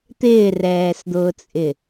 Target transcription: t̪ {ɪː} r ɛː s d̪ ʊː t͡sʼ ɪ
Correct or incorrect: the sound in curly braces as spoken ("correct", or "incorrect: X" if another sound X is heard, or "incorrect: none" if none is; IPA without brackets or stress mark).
correct